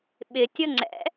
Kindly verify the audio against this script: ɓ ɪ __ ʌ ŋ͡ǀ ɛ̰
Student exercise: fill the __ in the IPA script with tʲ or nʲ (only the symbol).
tʲ